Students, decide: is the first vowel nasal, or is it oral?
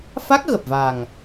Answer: oral